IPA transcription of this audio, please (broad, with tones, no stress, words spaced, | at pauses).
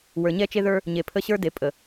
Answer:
wə˞˨ɲɛ˦t͡ʃe˦ðə˞˦ | ɲe˨pʰə˦˨ɕə˞˦ de˨ pʼə˨